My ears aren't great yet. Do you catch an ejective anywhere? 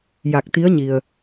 no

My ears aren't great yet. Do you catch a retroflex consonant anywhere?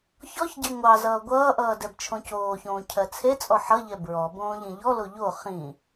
no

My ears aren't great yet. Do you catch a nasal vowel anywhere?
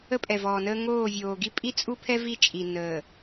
no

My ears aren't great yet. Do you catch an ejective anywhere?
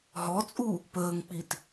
yes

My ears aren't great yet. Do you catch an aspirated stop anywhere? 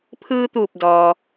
yes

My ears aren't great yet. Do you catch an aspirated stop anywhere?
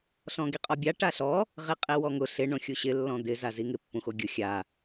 no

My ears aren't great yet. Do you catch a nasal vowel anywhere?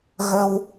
no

